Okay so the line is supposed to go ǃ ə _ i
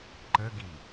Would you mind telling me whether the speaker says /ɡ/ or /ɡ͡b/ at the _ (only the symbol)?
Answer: ɡ